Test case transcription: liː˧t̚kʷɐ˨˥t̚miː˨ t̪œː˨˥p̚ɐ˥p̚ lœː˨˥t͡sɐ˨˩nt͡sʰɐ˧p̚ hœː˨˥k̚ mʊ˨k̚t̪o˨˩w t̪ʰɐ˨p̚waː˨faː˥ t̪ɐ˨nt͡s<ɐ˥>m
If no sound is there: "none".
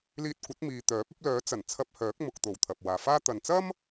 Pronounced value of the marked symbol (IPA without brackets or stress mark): ɐ˥